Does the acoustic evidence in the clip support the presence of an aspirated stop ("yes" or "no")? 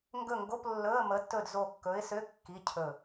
yes